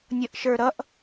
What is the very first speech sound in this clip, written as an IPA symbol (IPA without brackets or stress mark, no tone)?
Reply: nʲ